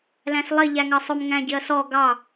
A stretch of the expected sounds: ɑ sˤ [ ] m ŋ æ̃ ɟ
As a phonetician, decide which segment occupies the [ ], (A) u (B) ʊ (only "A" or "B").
B